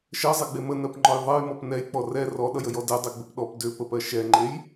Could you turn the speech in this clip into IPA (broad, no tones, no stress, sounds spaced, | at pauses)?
ʃ ɜ zˤ e ɡ͡b e m ə n ɜ p ŋ͡ǃ ɔ j ðˤ ɜ j m ɔ p n ɛ j k͡p ɔ r ɛ r ɔ ɗ ʌ j ə j ɔ d ɛ dˤ e ɡ͡b ʏ p ɗ ɔ p d ʏ p ə p ɜ ʃ ɛ ŋ͡ǃ e j